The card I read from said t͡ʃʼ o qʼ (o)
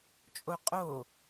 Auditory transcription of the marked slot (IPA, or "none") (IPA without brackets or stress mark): o